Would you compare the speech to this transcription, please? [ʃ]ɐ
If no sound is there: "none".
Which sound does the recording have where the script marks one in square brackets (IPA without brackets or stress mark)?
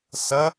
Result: s